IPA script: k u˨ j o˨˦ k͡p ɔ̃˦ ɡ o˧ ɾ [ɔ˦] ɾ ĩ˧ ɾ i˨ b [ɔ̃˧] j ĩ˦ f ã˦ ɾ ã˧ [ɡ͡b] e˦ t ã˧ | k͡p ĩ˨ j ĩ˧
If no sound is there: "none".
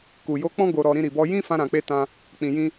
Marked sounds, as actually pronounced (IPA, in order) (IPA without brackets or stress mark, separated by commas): ɔ˧, ɔ˧, k͡p